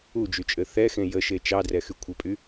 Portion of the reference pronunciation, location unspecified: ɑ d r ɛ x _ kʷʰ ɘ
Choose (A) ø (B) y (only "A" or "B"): B